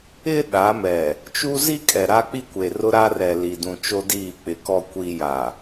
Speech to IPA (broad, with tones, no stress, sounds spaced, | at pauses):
ɪ˦ ɗ a˨˦ m ɛ˨ | t͡ʃ u˦ z i˦ kʼ ɛ˨ ɾ a˦ k͡p i˦ kʷ e˨ r ʊ˦ ɾ a˦ r ɛ˨ l i˨ d ũ˨ t͡ʃ o˦ d iː˦˨ k͡p ɪ˨ k ɔ˨ kʷ iː˨ j a˨